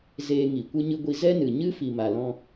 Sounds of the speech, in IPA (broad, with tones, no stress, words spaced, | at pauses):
zeː˧ŋi˨ kʷɨ˧ɲɨ˧ɡʷi˧ zɛ˦nɨ˨ ɲɨ˦fi˨ma˨lɔ̃˧